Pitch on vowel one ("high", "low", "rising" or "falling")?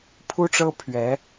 high